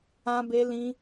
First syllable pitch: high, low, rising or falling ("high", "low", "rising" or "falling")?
high